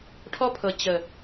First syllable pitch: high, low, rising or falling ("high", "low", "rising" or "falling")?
high